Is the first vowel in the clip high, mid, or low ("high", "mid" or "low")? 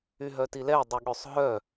high